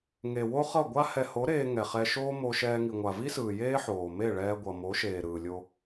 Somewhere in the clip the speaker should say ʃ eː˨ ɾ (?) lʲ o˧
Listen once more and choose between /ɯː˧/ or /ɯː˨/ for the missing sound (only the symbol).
ɯː˨